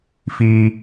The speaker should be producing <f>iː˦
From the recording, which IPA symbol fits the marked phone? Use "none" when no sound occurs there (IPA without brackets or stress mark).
f